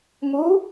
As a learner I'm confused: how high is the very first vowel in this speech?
high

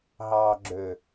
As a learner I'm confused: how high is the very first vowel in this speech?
low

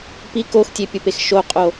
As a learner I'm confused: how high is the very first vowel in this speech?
high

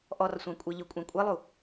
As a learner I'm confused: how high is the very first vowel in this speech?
mid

